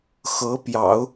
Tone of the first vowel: rising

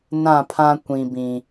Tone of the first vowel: falling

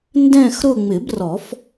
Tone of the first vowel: falling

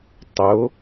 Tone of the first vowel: rising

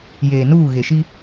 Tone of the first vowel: low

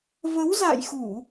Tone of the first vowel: rising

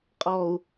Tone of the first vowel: low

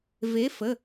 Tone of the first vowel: rising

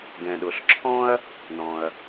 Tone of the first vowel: low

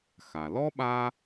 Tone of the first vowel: low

